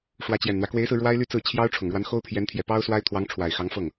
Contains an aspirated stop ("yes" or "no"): yes